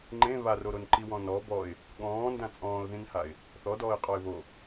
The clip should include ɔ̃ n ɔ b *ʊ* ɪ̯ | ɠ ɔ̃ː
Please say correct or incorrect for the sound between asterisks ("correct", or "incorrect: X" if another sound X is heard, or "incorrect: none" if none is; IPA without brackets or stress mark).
incorrect: ɔ